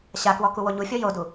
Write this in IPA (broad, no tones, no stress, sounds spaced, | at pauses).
ɕ a k w ɔ k u w o ɲ u fʲ ɔ j o d u